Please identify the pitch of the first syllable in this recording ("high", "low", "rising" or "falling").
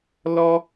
high